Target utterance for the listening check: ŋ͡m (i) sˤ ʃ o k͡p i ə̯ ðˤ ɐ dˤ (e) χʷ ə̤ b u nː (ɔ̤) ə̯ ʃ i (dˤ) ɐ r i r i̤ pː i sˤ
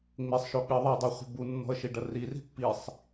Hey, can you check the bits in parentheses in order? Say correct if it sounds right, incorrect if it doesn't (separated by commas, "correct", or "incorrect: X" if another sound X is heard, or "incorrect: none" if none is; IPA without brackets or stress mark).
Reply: incorrect: e, correct, correct, incorrect: ɖ